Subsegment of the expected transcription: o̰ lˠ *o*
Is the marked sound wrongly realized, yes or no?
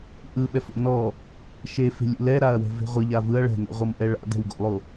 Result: no